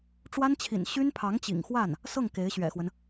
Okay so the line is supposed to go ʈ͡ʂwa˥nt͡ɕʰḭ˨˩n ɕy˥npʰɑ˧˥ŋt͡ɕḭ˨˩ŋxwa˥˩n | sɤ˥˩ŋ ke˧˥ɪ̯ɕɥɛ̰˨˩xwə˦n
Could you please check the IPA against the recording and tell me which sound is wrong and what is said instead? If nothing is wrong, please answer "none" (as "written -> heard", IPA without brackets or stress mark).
none